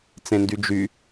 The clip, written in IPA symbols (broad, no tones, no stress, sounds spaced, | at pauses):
t͡s ẽ n d y d͡ʒ y